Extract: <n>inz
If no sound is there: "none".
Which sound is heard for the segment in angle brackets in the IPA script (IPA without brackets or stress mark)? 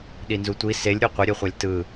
ɗ